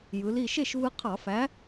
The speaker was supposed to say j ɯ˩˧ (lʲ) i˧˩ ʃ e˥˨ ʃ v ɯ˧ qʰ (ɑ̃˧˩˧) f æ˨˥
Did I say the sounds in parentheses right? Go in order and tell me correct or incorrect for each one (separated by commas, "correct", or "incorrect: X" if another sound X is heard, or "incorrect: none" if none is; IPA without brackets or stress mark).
incorrect: l, incorrect: ɑ˧˩˧